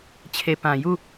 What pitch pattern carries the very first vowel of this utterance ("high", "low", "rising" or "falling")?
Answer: low